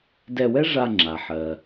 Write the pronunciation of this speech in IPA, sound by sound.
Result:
d ɛ˧ w ɛ˥ ʐ a˧ ŋ͡ǁ a˩ ħ ɜ˩

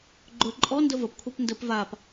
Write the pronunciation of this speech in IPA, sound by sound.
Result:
ɡ͡ǃ ɵ ǃʼ ɔ n d ə v ə p kʷʰ a p n d ə p v a p

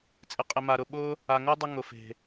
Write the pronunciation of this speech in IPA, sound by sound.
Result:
t͡sʼ ɪ˨ qʼ ɪ˨ m a˨ ɾ ʊ˨ ɓ ʊ˦ | a˨ ŋ o˦ dˤ ɪ˧ ŋ ʊ˨ f e̤˨

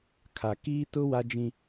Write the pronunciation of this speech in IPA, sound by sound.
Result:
kʰ a˨ k iː˦ t ʊ˦ w a˦ d͡ʒ ĩ˦

